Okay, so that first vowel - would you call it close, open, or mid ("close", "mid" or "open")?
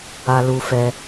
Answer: open